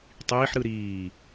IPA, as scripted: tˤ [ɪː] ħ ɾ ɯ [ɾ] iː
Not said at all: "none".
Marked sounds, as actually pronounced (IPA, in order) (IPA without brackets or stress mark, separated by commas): iː, ɾ